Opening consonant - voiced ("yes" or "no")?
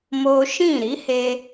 yes